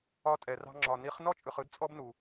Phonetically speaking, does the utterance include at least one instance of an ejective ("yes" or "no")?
yes